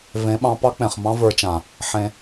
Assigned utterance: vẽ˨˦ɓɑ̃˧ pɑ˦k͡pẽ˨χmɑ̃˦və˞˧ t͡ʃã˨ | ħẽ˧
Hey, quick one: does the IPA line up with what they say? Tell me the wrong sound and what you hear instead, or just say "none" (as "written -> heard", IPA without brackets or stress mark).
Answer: none